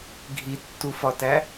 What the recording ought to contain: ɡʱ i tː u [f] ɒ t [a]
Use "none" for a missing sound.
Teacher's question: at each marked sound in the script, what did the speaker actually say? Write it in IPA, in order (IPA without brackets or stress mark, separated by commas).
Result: f, æ